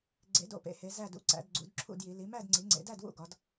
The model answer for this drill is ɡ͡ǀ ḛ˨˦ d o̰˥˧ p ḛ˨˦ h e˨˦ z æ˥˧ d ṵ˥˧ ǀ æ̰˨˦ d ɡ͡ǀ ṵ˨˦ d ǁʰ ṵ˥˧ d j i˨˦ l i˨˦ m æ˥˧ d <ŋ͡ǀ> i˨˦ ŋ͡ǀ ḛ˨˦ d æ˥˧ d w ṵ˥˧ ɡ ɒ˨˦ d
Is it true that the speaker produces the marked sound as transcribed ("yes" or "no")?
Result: yes